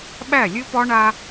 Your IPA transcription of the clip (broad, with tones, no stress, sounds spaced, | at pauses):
ɓ æ˦˨ lʲ ɨ˦ p ɒ˦ ɳ a˦